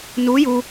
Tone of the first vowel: rising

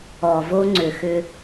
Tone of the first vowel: low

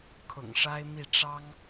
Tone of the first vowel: low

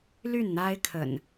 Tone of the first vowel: falling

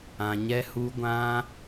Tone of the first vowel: low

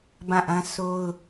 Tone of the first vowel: falling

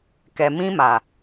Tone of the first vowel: low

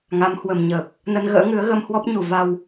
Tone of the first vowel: rising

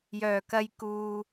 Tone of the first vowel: low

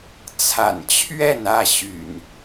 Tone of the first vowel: low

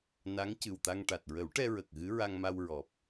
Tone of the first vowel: rising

